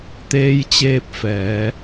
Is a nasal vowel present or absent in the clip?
absent